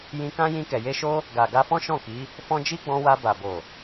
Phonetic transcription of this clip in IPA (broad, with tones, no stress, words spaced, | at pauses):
jĩ˧kã˦ jĩ˧kɛ˨je˧ʃo˦ | ɡa˨ ɡa˧fɔ̃˦ʃɔ̃˦˨ki˨˦ | fɔ̃˧ d͡ʒi˦ɡ͡bɔ̃˧wa˧ ba˨bo˨